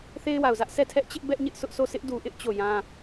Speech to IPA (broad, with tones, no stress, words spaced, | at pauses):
θe˦ɪ̯wa˨ʊ̯zä˦ʔ sʰɛ˦˨tʰɛ˦ʔt͡ɕɪ˦ʔ bɛ˦ʔɲɪ˦ʔsʰʊ˦ʔsʰo˦˨ sʰɪ˦ʔdu˨ʔɪ˦ʔ t͡ɕo˦˨jã˦